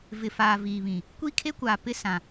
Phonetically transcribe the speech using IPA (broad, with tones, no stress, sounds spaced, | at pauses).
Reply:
v ɪ˨ f aː˨ v iː˨ β ĩ˨ | kʷ i˦ kʰ e˦ kʷ aː˨ p ɪ˦ s ã˨